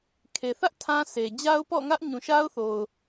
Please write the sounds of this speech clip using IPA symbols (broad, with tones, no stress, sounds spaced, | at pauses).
kʰ e˨ θ ä˦ ʔ tʰ ã˦ s e˨ d͡ʑ a˦ ʊ̯ p ɔ̰˦˨ ŋ ä˦ ʔ ɲ ũ˨ ʃ a˦ ʊ̯ θ o˨ ʊ̯